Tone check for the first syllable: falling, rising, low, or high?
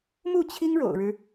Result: falling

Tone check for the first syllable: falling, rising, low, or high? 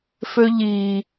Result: high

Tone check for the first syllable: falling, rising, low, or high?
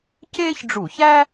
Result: high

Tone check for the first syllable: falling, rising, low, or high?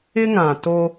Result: high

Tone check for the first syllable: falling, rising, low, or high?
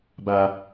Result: high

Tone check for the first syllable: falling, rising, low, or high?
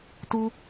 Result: high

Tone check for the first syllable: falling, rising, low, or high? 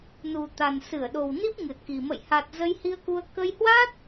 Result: low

